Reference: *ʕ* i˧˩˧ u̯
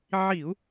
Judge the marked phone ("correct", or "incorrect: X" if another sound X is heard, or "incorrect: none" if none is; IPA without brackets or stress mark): correct